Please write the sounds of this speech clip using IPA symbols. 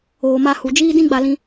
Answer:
oː˨ma˧ hu˨d͡ʒiː˦ dĩ˦ɡ͡ba˧lĩ˧

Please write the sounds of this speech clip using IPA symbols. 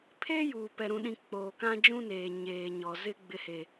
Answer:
pʰeː˦juː˨ pɛ˨ɾũ˨ɗĩ˨ k͡poː˨kã˦d͡ʒũ˦neː˨ ɲeː˨ɲɔ˨ zɪ˦ ɡ͡bɪ˦he˦

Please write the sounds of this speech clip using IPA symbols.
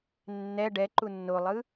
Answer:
nːɛ ɖɛ ǃunːolˠɯ

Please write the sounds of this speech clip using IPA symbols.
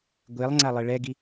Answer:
ɡʷelˠŋ͡ǀalˠɪ ɭɛɡi

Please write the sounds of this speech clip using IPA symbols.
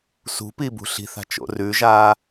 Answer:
sṳpi bṳɬi̤θa̤ t͡ʃo̰rʉʒaː

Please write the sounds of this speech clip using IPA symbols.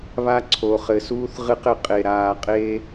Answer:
βa˦ǀʰo˨χɘ˨suː˦θ ʁɨ˦qɘ˨qʼe˨ ɾaː˨qʼe˦

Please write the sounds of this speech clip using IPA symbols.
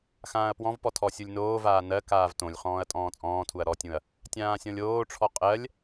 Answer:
xãːɐ̯pwɔ̃vpɔ tʰɔsʲulʲnoːvaː nɜ kaːvtõlʲχɔ̃ːɐ̯ tʼɔ̃ːt͡sʼɔ̃ːtʰuɐ̯ ɾɔtʲũɐ̯ | tʲãːsʲɔ̃lʲoːʈ͡ʂʰɔ qʼɜlʲ

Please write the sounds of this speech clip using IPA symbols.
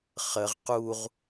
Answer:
χəʁ quʁ

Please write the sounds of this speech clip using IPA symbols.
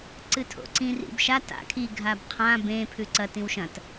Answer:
ǀɨtʰo̰ǀĩ rḭbʃa ta̰ kʰi ɡʱabqʰã bẽ pʰʉǀɐ tĩwʃɐ̃t

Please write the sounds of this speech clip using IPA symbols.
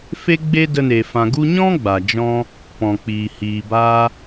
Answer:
fe˦ɡ͡be˦də˧ne˨ fã˨ɡu˧ɲɔ̃˦ ɡ͡ba˨d͡ʒɔ̃˦ | pɔ̃˨k͡piː˨ hiː˨ baː˧

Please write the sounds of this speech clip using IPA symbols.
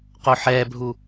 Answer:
qoħɛbʱu

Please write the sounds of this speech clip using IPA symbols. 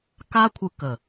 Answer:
ka˦kʷʰɯ˧kə˨

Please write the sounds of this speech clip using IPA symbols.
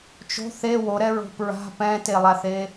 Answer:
t͡ʃo̤ θe woɾɛɹo̤ pɹa̤ pɛ̃telˠaθe

